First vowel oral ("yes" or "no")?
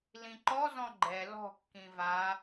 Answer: no